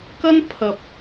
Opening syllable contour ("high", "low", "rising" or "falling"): high